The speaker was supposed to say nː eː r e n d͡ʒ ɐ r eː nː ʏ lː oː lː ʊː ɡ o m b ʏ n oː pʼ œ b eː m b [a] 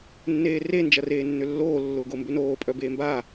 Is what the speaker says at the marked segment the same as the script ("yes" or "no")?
yes